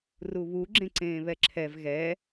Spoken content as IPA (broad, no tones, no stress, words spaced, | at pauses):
ruβu ɡ͡ǁẽǀẽːβɛǁʰɛv ɣɛ